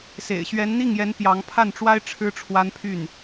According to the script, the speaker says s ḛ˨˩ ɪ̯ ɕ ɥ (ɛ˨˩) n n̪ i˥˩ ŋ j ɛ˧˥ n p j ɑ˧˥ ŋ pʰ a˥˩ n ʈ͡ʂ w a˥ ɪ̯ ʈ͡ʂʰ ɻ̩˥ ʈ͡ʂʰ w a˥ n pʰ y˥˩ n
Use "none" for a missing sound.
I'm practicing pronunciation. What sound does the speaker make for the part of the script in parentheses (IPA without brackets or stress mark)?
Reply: ɛ˧˥